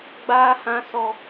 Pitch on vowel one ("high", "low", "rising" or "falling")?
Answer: high